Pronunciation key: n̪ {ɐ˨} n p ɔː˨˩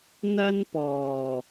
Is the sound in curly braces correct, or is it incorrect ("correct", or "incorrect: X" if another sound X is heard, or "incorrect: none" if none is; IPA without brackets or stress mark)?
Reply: incorrect: ɐ˥